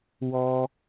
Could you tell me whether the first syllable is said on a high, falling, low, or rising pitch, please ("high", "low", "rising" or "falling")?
high